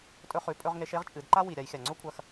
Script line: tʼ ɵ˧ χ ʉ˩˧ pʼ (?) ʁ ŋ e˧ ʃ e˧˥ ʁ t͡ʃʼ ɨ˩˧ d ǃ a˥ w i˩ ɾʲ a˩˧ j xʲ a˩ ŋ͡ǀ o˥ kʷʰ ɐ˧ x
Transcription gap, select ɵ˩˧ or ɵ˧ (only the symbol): ɵ˧